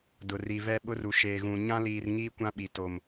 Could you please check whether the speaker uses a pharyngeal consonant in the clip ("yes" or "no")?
no